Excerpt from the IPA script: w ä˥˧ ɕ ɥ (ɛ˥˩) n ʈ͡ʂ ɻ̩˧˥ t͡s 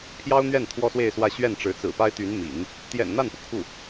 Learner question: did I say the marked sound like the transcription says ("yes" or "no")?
yes